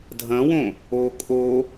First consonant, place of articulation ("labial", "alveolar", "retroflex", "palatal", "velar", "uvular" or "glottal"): alveolar